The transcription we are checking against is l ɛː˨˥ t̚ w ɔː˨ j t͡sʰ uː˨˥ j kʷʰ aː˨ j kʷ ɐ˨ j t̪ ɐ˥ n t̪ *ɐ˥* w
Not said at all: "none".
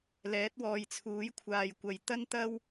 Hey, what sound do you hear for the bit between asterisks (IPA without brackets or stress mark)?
ɐ˥